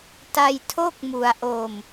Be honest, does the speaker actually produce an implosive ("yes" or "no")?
no